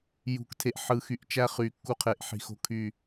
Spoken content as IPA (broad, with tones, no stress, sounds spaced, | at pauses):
j ṳ˨ k tʰ e˨ ʔ ħ ɯ˨ x y˨ ʔ t͡ʃ æ˦ χ y˨ kː u˦ qʰ e˨ ʔ ħ i̤˨ x o̤˦ kʰ y˦˨